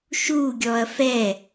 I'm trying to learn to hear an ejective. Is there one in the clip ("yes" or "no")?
no